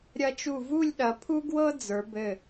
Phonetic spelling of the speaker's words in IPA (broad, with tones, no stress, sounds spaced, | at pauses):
ɾʲ ɐ˧ t͡ʃ u˧˩ v u˥˧ lʲ ɗ ɐ˩˧ pʰ u˥ ɡ w ɤ˥ d͡z ə˞˩˧ b ɘ˧˩